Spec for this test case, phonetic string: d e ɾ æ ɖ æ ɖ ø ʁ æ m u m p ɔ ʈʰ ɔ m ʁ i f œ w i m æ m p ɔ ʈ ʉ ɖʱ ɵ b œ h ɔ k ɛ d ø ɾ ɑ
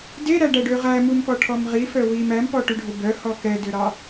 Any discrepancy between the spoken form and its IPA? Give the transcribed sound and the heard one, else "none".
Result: none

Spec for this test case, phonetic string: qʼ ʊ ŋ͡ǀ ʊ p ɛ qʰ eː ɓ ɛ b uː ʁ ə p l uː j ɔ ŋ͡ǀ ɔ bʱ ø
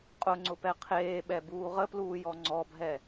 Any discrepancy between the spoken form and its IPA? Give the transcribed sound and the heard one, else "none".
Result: ø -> ɛ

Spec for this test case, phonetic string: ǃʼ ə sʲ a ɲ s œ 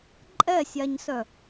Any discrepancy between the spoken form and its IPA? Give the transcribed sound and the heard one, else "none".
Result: ə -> ɛ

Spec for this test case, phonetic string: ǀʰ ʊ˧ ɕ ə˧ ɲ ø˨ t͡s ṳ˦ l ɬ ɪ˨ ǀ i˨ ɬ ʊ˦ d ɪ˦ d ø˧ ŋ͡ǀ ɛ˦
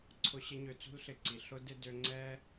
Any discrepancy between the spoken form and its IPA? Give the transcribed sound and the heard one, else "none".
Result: ə˧ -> ɪ˧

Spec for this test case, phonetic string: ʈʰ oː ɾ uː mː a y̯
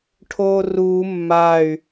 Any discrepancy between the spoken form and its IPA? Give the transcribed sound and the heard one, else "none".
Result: ɾ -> r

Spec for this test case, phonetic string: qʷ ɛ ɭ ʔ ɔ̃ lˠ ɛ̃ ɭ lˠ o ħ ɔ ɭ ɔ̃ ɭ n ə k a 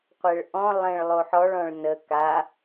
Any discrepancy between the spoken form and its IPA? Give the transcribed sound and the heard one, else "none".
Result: none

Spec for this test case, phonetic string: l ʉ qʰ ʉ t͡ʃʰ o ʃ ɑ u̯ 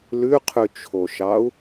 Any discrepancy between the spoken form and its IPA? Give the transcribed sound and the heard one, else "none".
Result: none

